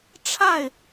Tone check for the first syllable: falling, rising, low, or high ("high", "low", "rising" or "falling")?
falling